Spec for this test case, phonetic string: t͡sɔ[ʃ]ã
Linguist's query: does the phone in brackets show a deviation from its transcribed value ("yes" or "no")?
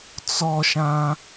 no